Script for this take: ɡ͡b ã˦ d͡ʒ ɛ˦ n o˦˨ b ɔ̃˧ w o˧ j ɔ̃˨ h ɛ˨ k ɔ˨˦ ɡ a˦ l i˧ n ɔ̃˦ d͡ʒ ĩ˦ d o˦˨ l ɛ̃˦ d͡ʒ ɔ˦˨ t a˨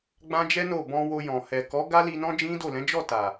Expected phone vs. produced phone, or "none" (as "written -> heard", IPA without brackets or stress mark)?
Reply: ɛ̃˦ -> ɛ̃˨˦